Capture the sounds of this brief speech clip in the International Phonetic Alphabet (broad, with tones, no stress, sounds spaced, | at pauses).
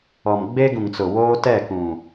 ɔ˨ m ɡ͡b e˦ ɡ ũ˨ ŋ t͡s ʊ˨ w oː˦ t ɛ˦˨ k ũ˨